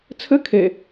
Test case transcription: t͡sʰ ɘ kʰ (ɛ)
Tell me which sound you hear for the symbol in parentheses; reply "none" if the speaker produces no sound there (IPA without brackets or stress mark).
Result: e